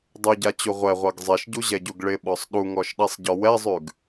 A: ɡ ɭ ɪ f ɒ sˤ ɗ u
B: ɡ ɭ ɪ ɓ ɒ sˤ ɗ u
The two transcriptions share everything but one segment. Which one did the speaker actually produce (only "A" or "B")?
B